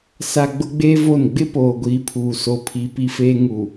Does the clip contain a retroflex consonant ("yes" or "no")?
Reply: no